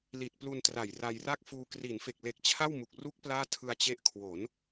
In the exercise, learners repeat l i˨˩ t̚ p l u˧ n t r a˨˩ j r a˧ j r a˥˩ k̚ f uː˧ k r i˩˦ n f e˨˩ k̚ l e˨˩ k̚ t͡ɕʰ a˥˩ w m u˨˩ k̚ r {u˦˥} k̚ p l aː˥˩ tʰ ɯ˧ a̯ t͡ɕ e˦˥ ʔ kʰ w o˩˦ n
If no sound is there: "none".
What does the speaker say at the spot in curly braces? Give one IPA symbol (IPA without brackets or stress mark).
u˦˥